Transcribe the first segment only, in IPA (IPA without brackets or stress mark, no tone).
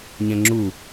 ɲ